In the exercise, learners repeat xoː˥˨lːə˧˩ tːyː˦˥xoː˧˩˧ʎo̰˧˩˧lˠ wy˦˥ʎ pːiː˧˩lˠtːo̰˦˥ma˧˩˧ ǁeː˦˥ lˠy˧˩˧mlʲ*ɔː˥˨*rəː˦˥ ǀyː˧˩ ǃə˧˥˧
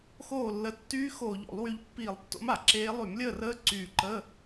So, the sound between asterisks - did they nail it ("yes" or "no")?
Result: no